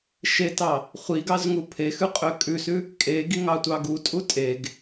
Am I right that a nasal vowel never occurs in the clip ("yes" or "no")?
yes